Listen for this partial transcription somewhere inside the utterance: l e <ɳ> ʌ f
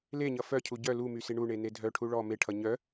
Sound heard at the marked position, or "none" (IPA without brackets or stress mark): ɲ